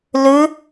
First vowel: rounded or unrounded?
rounded